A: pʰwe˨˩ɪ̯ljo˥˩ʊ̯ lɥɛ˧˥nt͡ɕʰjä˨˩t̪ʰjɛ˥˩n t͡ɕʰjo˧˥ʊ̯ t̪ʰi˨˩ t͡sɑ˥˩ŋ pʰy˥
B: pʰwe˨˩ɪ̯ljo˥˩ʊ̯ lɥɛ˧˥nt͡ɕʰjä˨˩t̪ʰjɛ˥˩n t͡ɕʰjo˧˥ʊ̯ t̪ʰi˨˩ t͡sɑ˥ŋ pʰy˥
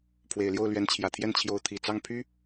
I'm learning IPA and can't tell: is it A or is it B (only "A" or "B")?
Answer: A